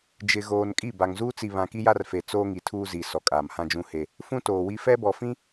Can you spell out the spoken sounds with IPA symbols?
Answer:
d͡ʒɪ˨ɣoː˨n kʼi˦˨ba˨ŋzuː˦t͡si˨ βã˨ki˦ja˦rfe˨ t͡soː˦ŋi˨tʰuː˦zi˨ sɔ˨kʼaː˨mhã˦d͡ʒũ˦ he˦ | fũ˦toː˨wi˦ fɛ˦bɔ˨fĩ˦

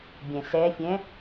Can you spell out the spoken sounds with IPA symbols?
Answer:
bʲɛ̃sɛfʲɛ̃

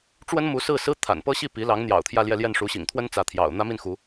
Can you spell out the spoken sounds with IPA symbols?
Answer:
ʈ͡ʂwə˥n mu˧˥sɹ̩˥˩sɹ̩˥ t̪ʰa̰˨˩n pɤ˥˧ɕi˥˩ pi˧˥lɑ˧˥ŋn̪jɑ̰˨˩ʊ̯ t̪ʰjä˥˧ljɛ˥˧ljɛ˥˩n ʂu˧˥ɕḭ˨˩ŋt̪ʰwə˥n t͡sä˧˥t̪ʰjɑ̰˨˩ʊ̯ n̪ä˥mi˥˩nxu˧˥

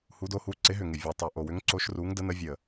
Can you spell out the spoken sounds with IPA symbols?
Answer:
hu˨˦do˨˦hu˨˦ ǀɪ˨˦ɦʏ˨˩ŋɪ˨˩ vʲo˨˩tˤu˨˩ ʔo˨˩wʏ˨˦ŋǀo˨˦ʃ ru˨˦ŋdə˨˦nə˨˦ vʲə˨˩

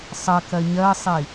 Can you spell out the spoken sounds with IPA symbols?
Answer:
sˤɜkɜ ɲɜsˤi

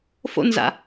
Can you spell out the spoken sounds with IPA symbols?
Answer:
fo̰nza̰

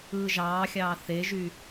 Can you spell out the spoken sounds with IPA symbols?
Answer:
ɯːʒɑːxʲɑː θeʒy

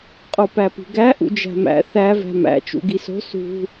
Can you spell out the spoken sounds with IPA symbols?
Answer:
qʼopæpi̤ɡæ ʔṵd͡ʒæ̤mæ̰ θæ væ̤mæ̰ t͡ʃṵɡiso̤ sṳ

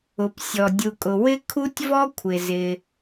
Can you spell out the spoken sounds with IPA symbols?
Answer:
ʊ˩p sʲɔ˩ dʲu˨kʼʊ˨ wɪ˥ kʰu˥tʲvɔ˥ kʷʰɪ˨ zɪ˨

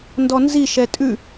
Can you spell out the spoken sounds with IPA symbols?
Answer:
ndɔnzi ʃɛtʼʉ

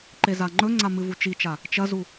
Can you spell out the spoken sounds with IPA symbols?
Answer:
ǃezaŋ͡ǃɵŋ͡ǀa mɨvut͡ʃit͡ʃa | t͡ʃɐzu

